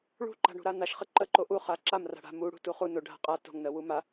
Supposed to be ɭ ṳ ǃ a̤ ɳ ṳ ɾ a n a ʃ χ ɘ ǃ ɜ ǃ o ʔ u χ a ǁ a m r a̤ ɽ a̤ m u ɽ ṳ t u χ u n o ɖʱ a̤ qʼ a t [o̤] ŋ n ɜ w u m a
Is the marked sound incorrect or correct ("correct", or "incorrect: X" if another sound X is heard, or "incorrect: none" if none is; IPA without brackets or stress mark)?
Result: correct